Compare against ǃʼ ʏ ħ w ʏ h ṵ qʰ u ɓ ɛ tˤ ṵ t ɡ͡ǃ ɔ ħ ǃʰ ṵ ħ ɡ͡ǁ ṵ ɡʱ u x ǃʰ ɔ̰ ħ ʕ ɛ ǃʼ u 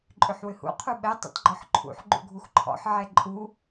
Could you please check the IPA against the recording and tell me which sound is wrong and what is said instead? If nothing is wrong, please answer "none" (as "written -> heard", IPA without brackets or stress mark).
ɡ͡ǁ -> ɡ͡ǃ